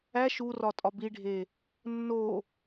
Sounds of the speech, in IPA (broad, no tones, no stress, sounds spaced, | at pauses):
æ ʃ u r ɒ tʼ ɒ b i ɖʱ e | nː o